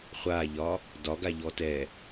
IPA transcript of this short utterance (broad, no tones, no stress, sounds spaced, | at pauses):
χʷ a ʎ ɒ | d ɒ ɡ a ʎ ɔ t ɛ